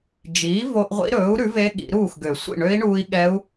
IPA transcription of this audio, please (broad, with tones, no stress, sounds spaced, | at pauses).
d͡ʒ iː˩˥ v o˧ ʔ ʁʷ ḭ˧˥ ɾ ɵː˩˥ u̯ ɾ ʉ˩˥ v e˧˥ ɠ ḭ˨˩˦ ɾ uː˥˩ x ɡ ø˨˩˦ sʷ ḭ˥˩ ɳ ø˧˥ i̯ ɳ uː˧ i̯ ɠ ɛ˧˥ u̯